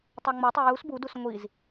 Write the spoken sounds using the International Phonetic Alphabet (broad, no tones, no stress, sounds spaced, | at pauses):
tˤ ɑ ŋ͡m o tˤ e j u s b u d u s ŋʷ i z